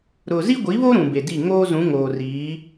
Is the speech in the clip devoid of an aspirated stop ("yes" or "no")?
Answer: yes